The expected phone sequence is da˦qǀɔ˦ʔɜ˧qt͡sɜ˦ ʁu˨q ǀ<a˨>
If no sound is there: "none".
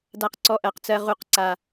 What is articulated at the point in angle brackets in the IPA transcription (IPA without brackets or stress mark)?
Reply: a˨